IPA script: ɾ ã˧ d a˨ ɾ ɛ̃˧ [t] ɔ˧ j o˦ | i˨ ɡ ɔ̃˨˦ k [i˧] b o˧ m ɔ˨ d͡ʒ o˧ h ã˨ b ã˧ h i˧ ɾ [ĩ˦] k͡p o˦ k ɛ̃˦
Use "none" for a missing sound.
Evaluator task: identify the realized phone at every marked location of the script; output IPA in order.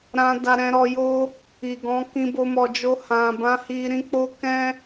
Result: ɾ, ĩ˧, ĩ˦

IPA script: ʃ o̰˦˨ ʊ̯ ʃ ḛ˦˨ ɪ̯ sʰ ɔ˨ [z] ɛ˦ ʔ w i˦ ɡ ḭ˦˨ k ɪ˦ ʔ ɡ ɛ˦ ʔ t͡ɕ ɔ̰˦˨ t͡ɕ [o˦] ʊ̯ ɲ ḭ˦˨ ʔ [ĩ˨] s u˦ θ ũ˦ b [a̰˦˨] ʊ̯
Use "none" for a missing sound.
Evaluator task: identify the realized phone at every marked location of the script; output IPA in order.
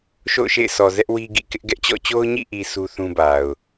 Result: z, o˦, i˨, a˨

